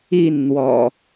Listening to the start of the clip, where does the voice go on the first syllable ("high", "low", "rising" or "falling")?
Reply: falling